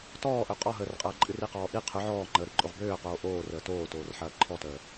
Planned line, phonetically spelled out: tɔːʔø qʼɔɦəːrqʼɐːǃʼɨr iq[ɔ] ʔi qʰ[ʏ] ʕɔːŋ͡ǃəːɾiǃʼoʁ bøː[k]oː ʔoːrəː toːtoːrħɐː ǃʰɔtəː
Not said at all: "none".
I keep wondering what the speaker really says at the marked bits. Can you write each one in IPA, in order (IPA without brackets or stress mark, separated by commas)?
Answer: ɔː, ʏ, q